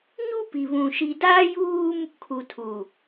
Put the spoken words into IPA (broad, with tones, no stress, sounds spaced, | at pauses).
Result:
ɲ u˦ p i˨ β ũ˨ ʃ i˨ d aː˦ j uː˦ m | kʰ u˨ tʰ u˨